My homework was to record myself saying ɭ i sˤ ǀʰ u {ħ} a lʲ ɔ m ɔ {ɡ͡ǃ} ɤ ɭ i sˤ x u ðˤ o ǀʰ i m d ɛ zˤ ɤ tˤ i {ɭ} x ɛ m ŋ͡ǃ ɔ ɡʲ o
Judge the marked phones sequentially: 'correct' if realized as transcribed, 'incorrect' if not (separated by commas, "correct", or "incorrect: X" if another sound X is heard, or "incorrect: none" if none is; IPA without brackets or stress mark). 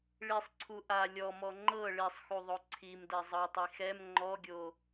incorrect: ʔ, incorrect: ŋ͡ǃ, incorrect: none